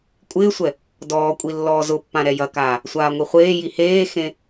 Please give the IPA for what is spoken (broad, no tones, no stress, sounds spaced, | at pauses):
kʷʼ ɪː sʷ ɛ | d ɔː kʷʼ i lː ɔː z ʊ pː ã ɾ ɛ j ɐ k aː | sʷ aː ŋʷ i χʷ eː j i h eː x ẽ